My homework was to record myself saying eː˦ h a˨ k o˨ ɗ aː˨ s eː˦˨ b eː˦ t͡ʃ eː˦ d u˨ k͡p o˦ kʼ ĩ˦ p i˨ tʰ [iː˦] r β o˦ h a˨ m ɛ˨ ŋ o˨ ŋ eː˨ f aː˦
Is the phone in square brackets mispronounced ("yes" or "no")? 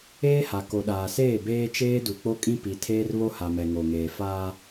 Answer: yes